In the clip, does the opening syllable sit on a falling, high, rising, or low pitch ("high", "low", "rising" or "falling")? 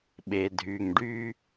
low